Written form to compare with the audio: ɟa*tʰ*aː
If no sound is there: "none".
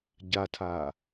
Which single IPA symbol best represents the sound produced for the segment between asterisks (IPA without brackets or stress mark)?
tʰ